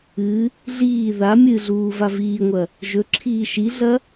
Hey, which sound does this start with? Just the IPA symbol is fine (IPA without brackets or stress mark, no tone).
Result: ɨ